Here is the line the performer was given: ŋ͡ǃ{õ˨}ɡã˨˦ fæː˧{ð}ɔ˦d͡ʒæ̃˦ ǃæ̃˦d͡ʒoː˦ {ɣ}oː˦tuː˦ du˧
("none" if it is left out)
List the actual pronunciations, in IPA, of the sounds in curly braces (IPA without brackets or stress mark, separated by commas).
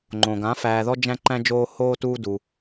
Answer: õ˨, ð, h